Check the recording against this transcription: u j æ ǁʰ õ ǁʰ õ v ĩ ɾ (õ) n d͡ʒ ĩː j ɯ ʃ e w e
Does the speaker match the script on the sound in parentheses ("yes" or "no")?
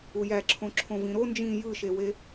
no